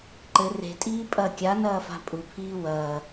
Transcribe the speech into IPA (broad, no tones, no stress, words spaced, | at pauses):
ǃɘ re̤tʼiː pʼɐ kʲanɐːfa̤ pʼupʰiː wɐː